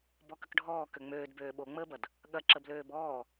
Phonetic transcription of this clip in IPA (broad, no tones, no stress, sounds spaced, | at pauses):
b ɔ k ə k ɖʱ ɔː k ø ŋ͡m øː d b øː ɓ o ŋ͡m əː b ɐ d | ɠ ɐ ǁ ə b l øː b ɔː